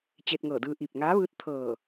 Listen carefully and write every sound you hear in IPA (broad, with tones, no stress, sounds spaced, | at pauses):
t͡ɕ e˧ t̚ ŋ ɤː˧˩ d ɯː˧ ʔ i˧˩ p̚ ŋ aː˧˥ ʋ ɯː˧˥ t̚ t̪ʰ ɤː˧˩